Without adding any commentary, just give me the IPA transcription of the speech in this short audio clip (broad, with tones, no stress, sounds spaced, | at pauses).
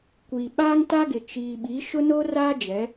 kʷ i˨ ɓ aː˦ ŋ t a˦ ɡ ɪ˨ t͡ʃ iː˨ ɓ i˨˦ ʃ ʊ˦ n oː˦ r aː˦ d͡ʒ ɛ˨˦